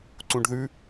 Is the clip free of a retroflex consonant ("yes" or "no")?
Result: no